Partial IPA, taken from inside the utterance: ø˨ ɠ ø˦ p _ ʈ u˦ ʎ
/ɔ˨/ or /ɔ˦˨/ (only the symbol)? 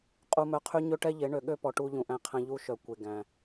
ɔ˨